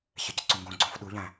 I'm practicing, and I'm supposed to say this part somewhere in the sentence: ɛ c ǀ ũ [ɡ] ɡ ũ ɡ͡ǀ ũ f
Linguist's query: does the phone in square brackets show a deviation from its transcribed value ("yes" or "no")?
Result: yes